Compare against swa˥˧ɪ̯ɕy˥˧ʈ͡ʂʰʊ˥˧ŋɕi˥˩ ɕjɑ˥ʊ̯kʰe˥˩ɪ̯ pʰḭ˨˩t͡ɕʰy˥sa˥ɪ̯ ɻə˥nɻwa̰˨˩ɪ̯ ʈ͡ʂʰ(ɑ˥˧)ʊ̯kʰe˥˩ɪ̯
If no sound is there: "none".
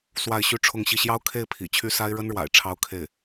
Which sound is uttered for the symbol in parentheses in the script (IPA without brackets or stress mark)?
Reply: ɑ˥